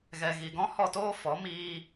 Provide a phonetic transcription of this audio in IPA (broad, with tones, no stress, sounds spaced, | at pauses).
ɣ ɛ˨ ɣ i˨ ɡ ɔ̃˦ h ɔ˦˨ t oː˦ f ɔ˨˦ m iː˧